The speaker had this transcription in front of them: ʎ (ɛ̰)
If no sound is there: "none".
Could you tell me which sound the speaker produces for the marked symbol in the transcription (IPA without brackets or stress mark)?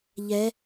ɛ